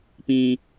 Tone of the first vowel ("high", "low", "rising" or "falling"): low